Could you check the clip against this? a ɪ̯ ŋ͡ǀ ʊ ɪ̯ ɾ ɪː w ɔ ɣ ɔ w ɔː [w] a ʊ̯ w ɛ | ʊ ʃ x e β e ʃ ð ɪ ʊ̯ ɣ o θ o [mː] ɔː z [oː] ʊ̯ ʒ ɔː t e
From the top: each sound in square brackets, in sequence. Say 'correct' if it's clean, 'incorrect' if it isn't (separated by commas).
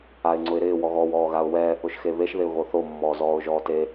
incorrect, correct, incorrect